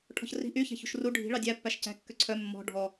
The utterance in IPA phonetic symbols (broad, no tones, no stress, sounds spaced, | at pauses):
ʈʰ ɔ̤ ç r i̤ ʔ y ç æ̤ ç ṳ ʃ r u ɖʱ i̤ ɭ ɑ dʲ æ pː æ ʃ c æ̤ kː ø ǀʰ œ mː ɔ̤ ɖʱ ɔ